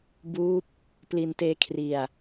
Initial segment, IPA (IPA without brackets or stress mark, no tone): b